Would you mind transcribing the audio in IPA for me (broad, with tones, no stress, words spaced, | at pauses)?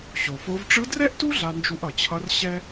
ɕo˩fo˧˥v ʈ͡ʂɯ˧˥drɛ˥ʔtu˥ ɮa˧nd͡ʒu˧ʔʌ˩t͡ɕʰʌ˧˥r ɕɛ˥